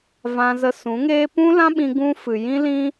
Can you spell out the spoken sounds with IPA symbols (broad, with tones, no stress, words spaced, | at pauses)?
vã˧zə˧sũ˨˦ŋeː˦ pũ˦lã˦ɓĩ˧ ɡũ˧fɨ˨ jĩ˦lĩ˦